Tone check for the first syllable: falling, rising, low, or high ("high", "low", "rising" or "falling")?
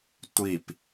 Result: falling